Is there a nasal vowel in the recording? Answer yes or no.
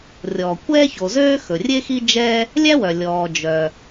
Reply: no